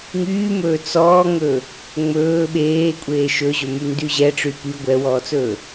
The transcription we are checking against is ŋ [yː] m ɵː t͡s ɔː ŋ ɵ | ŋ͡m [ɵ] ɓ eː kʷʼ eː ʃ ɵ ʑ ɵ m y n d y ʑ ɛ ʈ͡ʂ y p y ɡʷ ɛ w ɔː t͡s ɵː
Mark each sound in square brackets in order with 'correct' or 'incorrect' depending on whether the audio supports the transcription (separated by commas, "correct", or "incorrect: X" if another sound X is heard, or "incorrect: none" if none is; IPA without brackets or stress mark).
correct, incorrect: ɵː